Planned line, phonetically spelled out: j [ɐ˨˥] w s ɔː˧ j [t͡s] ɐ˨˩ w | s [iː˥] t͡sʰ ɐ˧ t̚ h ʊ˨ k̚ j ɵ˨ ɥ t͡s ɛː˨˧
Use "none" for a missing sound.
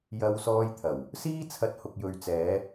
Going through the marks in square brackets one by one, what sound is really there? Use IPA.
ɐ˧, t̪ʰ, iː˥

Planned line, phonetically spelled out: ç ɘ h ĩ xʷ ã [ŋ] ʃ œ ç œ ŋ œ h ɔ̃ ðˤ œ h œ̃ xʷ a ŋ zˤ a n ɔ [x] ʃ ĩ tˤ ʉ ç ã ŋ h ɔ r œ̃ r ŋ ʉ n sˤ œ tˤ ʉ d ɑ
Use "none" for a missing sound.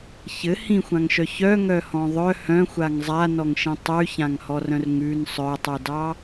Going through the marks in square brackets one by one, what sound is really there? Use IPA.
ŋ, ŋ

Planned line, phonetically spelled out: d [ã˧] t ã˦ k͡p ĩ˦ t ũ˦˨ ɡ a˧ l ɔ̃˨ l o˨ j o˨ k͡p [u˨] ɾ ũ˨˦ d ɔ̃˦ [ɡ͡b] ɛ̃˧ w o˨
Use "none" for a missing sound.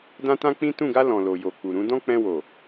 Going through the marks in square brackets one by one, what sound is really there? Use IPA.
ã˦, u˨, k͡p

